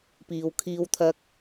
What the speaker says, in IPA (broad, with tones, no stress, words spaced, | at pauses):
piː˧wkʰiː˥wt̪ʰɐ˥k̚